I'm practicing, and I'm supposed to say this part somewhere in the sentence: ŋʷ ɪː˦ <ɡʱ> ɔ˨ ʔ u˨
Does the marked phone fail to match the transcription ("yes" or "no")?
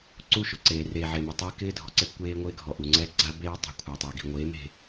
no